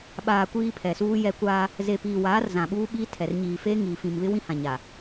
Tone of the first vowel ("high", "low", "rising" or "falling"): low